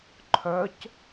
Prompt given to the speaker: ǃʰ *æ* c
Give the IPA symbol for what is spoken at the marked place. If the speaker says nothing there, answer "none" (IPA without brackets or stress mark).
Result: œ